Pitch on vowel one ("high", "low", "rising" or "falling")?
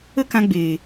high